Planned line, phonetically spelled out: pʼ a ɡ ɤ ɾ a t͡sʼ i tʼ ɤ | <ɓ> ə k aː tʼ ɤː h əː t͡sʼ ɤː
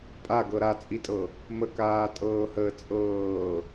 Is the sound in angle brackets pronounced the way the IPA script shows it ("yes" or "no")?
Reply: no